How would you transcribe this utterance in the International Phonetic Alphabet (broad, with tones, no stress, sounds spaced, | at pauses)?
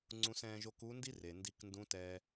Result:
ŋ͡ǀ ũ˧ s ɛ̃ː˧ ʒ o˧˥ k u˧˥ n d i˥ r e˩ n d i˧ k n d ũ˧˥ t ɛ˧